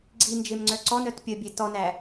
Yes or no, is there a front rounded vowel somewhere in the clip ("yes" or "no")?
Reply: yes